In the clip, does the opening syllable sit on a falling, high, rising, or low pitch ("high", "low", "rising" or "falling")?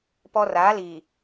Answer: high